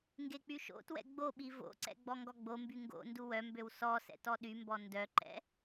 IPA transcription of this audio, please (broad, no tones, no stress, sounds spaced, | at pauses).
ŋ ɡ e k͡p y ʃ o̰ t w ɛ̰ ɡ͡b o ɓ i v o̰ ǀ ɛ̰ ɡ͡b ɔ ŋ ɡ ɔ ɡ͡b o m b y ŋ ɡ o̰ n d u w œ m b ø w s ɔ s ɛ̰ t ɔ ɗ y m b ɔ n d œ ǃ ɛ̰